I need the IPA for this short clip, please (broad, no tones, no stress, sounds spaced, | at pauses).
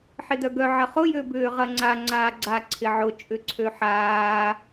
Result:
ħ ɪ d œ ɡ œ ʕ ɐ χ ʊ j ø b ʏː ʁ ɐ ŋ͡ǀ a ŋ͡ǀ aː ɡ͡ǀ a ǀʰ ɪ ʕ ʊ t͡ʃʼ ʏ ǀʰ ø ħ aː